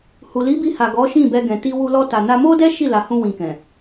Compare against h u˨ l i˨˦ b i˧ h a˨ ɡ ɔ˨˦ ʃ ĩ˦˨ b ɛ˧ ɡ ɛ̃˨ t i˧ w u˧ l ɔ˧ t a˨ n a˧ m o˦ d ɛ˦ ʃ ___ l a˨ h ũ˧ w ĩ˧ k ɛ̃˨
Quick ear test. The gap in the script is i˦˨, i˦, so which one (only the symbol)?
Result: i˦˨